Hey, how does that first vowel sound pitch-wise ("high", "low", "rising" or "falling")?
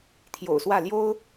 low